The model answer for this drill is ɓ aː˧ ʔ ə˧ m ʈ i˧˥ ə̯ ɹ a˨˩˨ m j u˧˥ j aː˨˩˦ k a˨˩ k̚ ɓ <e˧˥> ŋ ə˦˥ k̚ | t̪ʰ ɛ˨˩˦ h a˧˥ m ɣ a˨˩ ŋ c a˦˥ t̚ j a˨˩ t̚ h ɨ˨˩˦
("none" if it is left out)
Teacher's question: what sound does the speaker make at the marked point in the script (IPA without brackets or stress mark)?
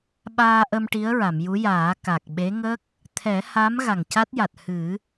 e˧˥